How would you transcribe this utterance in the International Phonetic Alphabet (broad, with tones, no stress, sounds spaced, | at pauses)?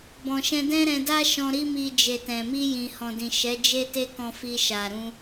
b ɔ̃˨ ʃ ɛ̃˧ d ɛ̃˦ ɾ ɛ̃˧ d a˦ ʃ ɔ̃˧ ɾ i˦ m i˧ d͡ʒ e˨ t ɛ̃˨ m i˧ j ĩ˨ h ɔ̃˨ d ĩ˨ ʃ ɛ˨˦ d͡ʒ e˦ t e˦ k ɔ̃˧ f i˧ ʃ a˨ ɾ ũ˧